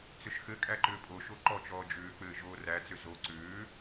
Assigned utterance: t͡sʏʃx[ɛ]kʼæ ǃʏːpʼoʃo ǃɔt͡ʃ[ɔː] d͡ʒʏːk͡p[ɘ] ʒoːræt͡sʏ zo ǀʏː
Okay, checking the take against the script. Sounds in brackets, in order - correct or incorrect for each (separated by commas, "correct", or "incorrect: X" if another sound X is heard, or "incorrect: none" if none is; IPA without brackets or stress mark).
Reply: incorrect: ɘ, correct, incorrect: ɘː